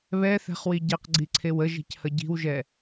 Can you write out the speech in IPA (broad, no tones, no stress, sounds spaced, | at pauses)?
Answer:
β ɛ θ ɛ̤ χ w i ɟ e q ɡ͡ǀ i ǀʰ e w ə ʒ i̤ c h ə ɟ i̤ w ʒ ɛ